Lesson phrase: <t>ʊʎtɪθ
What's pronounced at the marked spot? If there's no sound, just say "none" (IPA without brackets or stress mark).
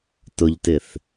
t